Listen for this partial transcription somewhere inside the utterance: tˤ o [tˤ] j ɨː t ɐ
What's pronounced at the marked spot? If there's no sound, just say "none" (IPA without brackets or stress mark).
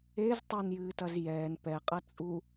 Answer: n